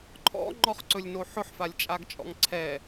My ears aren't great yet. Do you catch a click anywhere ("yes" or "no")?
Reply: yes